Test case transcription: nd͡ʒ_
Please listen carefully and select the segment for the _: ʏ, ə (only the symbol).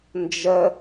ə